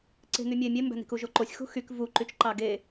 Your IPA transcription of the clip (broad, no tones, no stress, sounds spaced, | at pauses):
ǀ e̤ ŋ y mʲ e mʲ e m b æ̤ n i̤ k u ʒ o ǃ o sʲ x ṳ x y k v u ǃ y t͡ʃ ǃ ɑ ɡ e